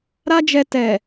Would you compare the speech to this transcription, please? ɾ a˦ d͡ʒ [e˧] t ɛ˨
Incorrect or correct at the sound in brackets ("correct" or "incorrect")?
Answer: incorrect